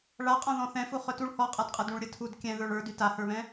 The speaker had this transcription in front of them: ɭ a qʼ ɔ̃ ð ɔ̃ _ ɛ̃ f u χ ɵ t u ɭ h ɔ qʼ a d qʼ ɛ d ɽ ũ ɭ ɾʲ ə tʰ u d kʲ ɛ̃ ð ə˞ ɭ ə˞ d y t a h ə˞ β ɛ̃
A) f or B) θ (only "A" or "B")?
B